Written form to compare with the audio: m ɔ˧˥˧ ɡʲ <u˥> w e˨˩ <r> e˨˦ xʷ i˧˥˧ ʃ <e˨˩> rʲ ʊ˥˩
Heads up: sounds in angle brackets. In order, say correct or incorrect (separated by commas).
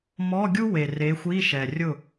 correct, correct, incorrect